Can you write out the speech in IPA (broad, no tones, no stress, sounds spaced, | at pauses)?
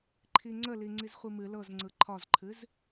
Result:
ǃʰ i ŋ͡ǀ ə l i ŋ͡ǀ i z χʷ i m ɨ l ɤ z ŋ͡ǀ ɯ ǃʰ ɒ z ǃʰ ɨ z